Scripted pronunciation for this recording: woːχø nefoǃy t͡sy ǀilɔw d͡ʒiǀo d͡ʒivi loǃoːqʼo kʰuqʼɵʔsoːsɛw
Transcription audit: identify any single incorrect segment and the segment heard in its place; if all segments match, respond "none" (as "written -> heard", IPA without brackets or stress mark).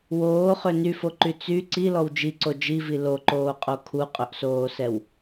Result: e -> y